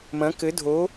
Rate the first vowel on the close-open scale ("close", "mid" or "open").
open